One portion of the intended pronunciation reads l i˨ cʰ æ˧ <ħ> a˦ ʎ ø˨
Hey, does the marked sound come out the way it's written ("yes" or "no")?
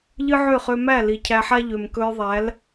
yes